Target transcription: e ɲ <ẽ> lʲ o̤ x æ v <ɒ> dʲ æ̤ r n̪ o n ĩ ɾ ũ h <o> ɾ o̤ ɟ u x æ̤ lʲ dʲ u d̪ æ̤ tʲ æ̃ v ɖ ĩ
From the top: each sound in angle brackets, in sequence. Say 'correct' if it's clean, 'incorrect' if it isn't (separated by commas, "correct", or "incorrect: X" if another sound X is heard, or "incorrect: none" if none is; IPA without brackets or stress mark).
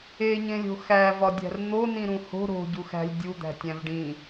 correct, correct, incorrect: o̤